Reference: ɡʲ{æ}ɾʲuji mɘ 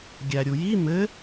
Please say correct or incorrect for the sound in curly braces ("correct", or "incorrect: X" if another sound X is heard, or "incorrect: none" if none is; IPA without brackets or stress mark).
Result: correct